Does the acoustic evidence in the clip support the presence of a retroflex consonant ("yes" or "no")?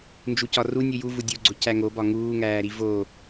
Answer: no